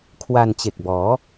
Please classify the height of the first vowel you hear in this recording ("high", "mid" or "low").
low